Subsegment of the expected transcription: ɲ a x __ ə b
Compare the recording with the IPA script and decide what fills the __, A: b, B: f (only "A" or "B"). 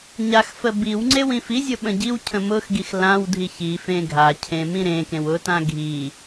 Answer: B